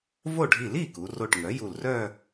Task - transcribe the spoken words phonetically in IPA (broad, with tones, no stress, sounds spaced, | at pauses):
v o˥˩ ɖʱ i˧˩ l i˥˩ k u˩˧ r o˧˩ ʈ ŋ œ˩˥ j u˧˩ l r œ˥˧